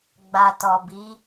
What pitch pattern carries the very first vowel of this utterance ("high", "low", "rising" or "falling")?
low